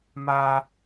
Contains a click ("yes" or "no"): no